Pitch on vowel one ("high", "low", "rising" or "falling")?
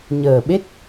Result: low